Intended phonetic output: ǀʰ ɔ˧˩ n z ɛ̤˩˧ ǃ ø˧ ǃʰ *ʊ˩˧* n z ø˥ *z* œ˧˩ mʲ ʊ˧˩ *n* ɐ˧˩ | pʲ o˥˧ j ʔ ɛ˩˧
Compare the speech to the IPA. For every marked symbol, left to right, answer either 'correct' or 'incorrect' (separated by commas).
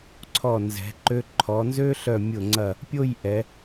incorrect, incorrect, incorrect